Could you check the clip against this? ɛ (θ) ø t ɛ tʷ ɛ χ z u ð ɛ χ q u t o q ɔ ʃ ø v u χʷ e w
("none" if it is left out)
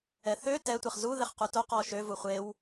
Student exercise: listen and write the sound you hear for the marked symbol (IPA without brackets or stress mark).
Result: θ